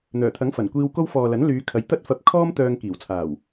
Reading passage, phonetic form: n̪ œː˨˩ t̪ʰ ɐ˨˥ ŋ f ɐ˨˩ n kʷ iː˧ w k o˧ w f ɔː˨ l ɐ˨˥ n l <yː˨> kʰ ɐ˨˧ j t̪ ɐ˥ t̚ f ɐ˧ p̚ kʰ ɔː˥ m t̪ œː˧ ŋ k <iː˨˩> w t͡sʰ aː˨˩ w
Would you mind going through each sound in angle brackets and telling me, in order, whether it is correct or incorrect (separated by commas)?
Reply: incorrect, correct